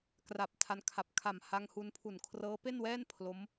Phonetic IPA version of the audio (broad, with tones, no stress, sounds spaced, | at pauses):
k r a˨˩ p̚ tʰ a˧ n kʰ a˨˩ p̚ kʰ a˨˩ m h a˧ ŋ h u˧ n pʰ u˨˩ n kʰ r ɤː˦˥ p e˥˩ n w ɛː˥˩ n pʰ l o˦˥ m